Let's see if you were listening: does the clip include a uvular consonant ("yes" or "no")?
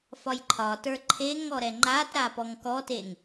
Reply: no